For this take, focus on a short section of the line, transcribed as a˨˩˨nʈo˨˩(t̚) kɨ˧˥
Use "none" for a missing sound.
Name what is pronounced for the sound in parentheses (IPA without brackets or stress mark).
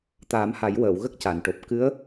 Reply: p̚